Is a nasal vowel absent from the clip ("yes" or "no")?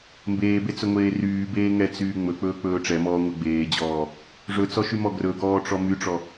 yes